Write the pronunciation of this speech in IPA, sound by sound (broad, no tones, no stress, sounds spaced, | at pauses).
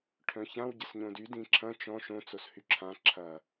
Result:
ʈʰ œ̃ ç ã w ɟ ə s ɲ õ d y d ĩ ǁʰ ɐ̃ t͡ʃ ɔ̃ ʃ õ t͡s o s h y ǁʰ ã ǁʰ ɐ